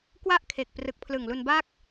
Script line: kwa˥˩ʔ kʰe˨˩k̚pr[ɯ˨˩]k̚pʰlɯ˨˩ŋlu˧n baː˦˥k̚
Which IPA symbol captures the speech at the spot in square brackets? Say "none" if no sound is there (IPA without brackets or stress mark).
ɯ˨˩